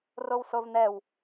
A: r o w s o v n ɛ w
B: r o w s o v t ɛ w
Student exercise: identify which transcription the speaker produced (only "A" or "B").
A